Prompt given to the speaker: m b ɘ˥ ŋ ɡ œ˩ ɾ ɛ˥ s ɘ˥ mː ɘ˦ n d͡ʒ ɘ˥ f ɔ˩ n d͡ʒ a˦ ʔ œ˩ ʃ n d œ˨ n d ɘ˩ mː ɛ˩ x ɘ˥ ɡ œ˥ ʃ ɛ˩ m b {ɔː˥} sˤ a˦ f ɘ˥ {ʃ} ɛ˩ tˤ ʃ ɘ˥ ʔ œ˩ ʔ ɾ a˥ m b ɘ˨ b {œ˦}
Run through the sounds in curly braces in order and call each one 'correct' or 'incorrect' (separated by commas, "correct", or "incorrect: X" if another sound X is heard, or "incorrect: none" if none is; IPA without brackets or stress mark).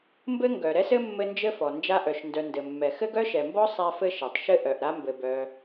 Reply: incorrect: ɔ˥, correct, incorrect: œ˨